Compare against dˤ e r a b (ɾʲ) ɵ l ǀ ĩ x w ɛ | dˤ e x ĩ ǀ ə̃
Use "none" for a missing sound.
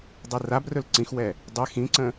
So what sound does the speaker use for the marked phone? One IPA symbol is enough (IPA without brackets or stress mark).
r